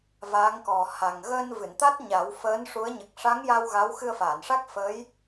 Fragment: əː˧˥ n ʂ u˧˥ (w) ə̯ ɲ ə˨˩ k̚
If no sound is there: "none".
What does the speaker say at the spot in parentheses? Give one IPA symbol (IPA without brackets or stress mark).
none